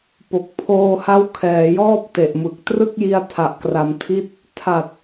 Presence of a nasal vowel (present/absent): absent